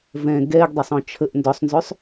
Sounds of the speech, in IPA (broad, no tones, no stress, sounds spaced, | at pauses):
v ɛ̃ ɡ ɛ ɡ dˤ e sˤ ɔ̃ t͡ʃʰ ə ʔ n d ɔ sˤ n z ø sˤ